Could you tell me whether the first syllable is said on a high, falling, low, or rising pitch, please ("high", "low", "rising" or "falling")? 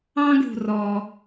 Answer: high